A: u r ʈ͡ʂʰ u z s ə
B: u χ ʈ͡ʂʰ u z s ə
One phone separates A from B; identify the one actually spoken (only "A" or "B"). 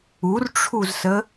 A